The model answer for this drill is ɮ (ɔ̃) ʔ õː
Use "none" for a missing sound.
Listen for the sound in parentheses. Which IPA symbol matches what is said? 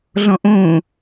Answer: ɔ̃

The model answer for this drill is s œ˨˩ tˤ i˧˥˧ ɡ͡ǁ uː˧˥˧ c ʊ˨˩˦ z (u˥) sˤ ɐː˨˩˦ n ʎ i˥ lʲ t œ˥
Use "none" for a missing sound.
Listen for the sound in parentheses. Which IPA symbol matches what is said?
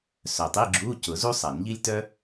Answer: u˥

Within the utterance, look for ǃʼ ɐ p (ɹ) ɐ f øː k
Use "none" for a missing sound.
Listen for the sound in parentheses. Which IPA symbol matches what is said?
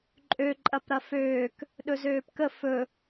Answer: ɾ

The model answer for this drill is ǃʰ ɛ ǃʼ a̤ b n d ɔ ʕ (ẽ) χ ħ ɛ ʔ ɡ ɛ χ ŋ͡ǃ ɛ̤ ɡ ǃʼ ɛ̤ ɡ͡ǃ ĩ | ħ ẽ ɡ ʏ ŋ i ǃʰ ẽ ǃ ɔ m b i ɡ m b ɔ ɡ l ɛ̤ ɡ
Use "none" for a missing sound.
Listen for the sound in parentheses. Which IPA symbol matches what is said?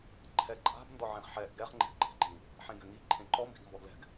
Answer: ẽ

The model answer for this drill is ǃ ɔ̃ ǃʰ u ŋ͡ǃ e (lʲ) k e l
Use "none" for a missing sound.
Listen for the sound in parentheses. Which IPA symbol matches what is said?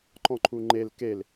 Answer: l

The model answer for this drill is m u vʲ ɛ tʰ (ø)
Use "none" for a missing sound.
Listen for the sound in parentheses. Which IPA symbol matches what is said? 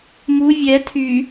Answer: y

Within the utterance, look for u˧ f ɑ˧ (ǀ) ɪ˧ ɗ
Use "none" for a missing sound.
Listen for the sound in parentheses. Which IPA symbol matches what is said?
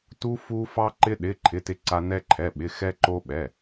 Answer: ǃ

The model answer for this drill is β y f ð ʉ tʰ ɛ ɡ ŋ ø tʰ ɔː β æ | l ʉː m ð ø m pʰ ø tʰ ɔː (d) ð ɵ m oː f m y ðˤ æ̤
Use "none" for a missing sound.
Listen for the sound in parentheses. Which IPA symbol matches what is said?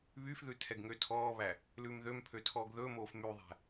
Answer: ɡ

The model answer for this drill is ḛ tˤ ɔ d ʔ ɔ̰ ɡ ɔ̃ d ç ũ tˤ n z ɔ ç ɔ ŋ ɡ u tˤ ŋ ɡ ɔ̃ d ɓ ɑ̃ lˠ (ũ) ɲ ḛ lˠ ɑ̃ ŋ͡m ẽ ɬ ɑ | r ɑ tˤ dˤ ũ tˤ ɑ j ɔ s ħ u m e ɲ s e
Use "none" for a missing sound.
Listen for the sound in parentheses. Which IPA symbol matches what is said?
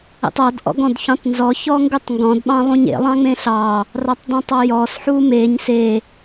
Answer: ũ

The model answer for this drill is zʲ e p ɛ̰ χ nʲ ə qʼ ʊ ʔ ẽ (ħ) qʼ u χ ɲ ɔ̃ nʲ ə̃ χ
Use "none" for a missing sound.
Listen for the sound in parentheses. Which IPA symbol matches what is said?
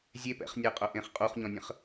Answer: χ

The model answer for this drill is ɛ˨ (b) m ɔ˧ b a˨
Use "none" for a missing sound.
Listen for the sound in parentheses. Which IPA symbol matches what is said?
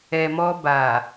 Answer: none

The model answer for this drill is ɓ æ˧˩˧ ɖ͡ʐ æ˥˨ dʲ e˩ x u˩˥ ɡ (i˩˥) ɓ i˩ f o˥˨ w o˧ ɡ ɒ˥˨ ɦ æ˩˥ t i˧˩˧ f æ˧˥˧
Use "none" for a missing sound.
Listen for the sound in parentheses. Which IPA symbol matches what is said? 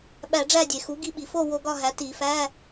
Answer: i˧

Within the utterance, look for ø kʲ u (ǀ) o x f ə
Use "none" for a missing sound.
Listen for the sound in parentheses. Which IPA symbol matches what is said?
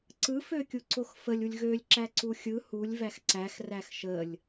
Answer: ǀ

